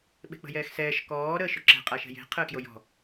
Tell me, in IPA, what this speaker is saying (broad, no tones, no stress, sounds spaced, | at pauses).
ɓ e̤ k͡p ə̤ j ɛː x s ɛː ʃ k ɔː ɾ əː ʃ ʊ ǁ ɛ̤ qʼ a ʃ ɛ̤ j e̤ qʰ əː k j o j ɔ̤